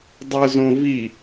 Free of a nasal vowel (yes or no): no